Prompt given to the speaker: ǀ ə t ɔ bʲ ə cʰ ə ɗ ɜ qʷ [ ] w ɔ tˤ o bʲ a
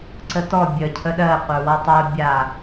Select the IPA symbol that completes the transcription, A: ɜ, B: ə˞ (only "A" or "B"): B